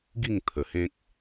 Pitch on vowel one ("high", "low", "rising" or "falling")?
falling